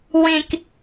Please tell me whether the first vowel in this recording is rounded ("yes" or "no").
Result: no